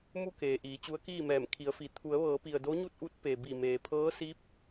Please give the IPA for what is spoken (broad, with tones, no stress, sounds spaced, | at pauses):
m u˥˨ k eː˩ ʔ iː˩˧ t͡ɕ u˧˥ ə̯ k iː˥˨ m ɛː˧˩ m kʰ i˩˧ ə̯ f i˩ t̪ʰ u˩˧ ə̯ ʋ ɤː˩˧ p i˩ ə̯ d o˧˥ ɲ u˥˨ t̚ ʔ u˧˥ t̚ p e˩ b i˧˩ m eː˩ pʰ ɤː˧˥ s i˧˥ p̚